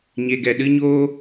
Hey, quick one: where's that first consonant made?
palate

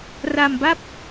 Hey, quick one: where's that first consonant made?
tongue tip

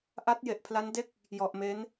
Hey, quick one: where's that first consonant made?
throat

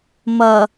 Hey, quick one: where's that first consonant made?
lips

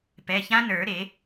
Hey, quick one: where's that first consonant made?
lips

